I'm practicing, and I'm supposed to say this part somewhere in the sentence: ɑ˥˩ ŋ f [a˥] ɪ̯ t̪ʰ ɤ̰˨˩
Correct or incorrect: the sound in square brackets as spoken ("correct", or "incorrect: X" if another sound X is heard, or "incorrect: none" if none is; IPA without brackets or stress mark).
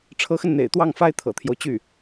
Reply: correct